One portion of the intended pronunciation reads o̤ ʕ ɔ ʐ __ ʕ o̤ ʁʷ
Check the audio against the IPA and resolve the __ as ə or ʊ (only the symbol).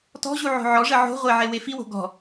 ə